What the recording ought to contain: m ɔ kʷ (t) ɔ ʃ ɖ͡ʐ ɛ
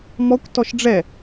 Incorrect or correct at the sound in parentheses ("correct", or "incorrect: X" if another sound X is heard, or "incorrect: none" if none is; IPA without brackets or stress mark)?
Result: correct